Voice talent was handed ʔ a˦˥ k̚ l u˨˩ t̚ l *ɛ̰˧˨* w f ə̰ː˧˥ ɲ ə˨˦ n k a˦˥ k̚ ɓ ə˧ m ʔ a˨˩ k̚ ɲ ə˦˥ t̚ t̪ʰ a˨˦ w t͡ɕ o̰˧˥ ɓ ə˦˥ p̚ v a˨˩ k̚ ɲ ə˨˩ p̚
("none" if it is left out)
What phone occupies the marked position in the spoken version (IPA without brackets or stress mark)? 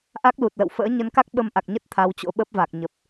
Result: ə̰˧˨